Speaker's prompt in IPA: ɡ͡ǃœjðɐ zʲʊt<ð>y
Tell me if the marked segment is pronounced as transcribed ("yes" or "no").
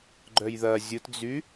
no